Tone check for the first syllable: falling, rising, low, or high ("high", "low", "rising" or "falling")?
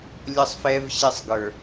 high